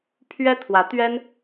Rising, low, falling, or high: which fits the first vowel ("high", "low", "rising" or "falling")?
high